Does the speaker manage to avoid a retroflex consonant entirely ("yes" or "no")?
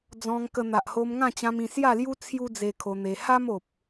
yes